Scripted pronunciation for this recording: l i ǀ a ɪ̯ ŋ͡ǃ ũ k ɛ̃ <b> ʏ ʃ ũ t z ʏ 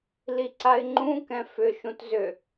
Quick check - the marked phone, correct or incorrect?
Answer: incorrect: f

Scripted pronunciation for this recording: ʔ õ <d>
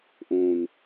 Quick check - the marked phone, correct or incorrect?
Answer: incorrect: n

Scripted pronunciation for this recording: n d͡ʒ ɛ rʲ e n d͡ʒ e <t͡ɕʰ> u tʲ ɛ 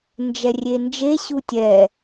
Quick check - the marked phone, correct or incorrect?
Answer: incorrect: ɕ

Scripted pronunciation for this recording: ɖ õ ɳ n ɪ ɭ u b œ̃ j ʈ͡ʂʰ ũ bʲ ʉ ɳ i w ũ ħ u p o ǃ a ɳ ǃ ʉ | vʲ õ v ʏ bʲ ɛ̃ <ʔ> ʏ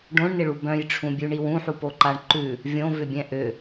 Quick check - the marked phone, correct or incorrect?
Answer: correct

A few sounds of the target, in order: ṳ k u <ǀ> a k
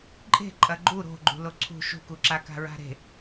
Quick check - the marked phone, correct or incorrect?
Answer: incorrect: ǁ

